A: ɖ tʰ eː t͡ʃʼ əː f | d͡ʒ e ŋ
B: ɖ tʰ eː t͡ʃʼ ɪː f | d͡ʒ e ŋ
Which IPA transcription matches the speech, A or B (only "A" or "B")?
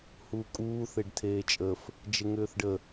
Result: A